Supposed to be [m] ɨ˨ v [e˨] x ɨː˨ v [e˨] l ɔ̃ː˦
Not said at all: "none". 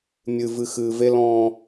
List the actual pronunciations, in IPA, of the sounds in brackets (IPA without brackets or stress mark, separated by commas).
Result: mʲ, ɨ˨, e˦